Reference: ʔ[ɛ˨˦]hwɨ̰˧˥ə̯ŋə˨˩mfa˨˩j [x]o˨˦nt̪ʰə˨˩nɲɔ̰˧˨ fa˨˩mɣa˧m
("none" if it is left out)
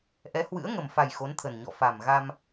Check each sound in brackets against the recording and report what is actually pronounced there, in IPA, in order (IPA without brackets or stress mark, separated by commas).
ɛ˨˦, x